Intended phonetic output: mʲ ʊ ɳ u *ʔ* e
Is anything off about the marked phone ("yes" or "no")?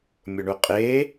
yes